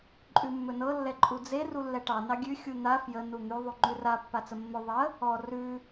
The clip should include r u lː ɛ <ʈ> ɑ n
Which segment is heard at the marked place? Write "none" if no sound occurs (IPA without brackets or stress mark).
ʈ